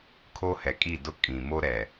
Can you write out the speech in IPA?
kʰ o˦ h ɛ˨ kʼ i˦˨ d ʊ˦ kʼ ĩ˨ m o˦ ɾ ɛ˨

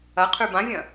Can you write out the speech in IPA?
ɐ qʰ ʉ b ã vʲ ɐ̃

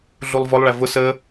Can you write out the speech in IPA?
ɮ u lˠ v ɔ lˠ ɭ æ v ʊ s ə

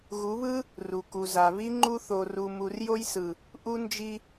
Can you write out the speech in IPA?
ɣ u˨˦ β ɯ˦ | r u˨ k u˨ z a˨ β i˦ ŋ͡ǃ u˧ θ o˨ r u˨ m u˨ r j o˧ j s ɯ˨ | ʔ u˧ n d͡ʒ i˧

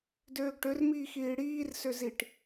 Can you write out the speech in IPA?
d øː ɡ ʈ ø r m iː x iː ɽ iː r s ø z i ʈ

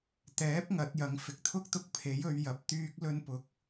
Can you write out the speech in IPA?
t̪ ɛː˨˥ p̚ ŋ ɐ˨˥ t̚ j ɐ˨˥ ŋ f ɪ˨ k̚ t̪ʰ ʊ˥ k̚ t̪ ʊ˧ k̚ pʰ e˨˥ j ɵ˨˧ ɥ j ɐ˨˥ p̚ t̪ yː˥ k̚ l ɵ˧ n p ʊ˨˥ k̚

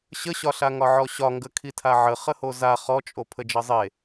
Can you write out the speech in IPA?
ɕ ə ɕ ɒ ɬ a ŋ ɒ ʕ ɔ ɕ ɒ ŋ ɡ ə kʰ i tʰ a ʕ ə χ ə h o z a χ ɔ t͡ʃʼ o pʰ ə d͡ʒ ʌ zˤ e

